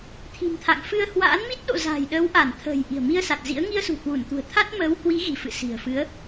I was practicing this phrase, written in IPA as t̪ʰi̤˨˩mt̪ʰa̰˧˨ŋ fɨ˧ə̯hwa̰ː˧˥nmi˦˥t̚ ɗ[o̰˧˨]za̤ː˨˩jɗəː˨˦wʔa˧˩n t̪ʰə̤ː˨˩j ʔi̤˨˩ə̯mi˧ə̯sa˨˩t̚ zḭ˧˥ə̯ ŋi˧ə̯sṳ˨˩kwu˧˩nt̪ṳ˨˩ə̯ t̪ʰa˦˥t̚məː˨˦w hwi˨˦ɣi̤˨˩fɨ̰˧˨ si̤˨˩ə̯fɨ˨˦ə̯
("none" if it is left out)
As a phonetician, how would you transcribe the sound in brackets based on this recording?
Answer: o̰˧˨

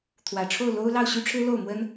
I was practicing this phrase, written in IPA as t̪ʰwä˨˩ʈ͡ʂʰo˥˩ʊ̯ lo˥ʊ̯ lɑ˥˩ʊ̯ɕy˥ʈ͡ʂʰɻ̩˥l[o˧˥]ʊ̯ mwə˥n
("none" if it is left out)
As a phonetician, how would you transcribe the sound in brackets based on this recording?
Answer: o˥˩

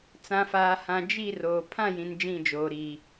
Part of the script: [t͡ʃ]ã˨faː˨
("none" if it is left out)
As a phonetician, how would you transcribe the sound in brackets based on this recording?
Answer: t͡s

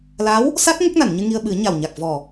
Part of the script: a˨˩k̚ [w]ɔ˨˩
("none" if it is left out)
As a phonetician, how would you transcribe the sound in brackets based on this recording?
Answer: v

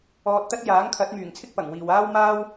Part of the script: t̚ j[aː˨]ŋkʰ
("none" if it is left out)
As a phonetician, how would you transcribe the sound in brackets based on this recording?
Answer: aː˨˥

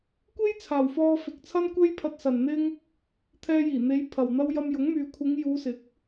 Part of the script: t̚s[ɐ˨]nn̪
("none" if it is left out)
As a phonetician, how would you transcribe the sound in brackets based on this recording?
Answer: ɐ˨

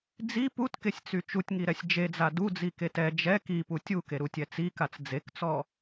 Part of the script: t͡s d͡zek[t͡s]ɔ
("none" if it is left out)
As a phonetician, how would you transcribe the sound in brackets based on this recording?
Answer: t͡s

